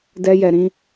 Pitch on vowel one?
high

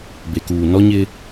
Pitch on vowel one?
low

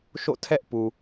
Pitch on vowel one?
falling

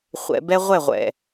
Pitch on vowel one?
low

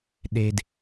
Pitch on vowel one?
low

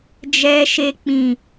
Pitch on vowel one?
high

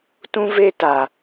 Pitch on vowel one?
high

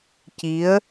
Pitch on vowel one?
rising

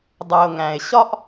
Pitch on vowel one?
low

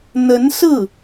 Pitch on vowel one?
rising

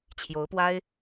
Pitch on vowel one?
rising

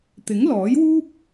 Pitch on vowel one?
rising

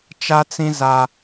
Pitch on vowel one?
high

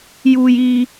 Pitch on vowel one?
low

